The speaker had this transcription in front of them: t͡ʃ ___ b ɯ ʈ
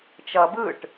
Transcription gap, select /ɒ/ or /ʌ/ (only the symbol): ʌ